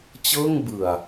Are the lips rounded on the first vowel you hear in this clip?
no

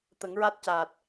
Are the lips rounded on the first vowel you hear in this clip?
no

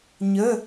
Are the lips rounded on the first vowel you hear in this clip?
no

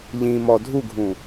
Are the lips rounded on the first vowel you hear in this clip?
no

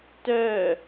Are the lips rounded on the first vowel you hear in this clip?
yes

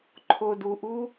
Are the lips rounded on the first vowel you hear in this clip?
yes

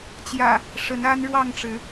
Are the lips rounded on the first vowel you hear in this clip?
no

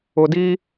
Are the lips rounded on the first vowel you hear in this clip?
yes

